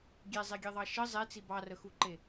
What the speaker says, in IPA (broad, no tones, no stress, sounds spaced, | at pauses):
ɡʲ e zˤ e ɡʲ e ðˤ ɑ ʃ ə zˤ e t͡s i b ɑ r ə x u ǃ e